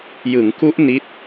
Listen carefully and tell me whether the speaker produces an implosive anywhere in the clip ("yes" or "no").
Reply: no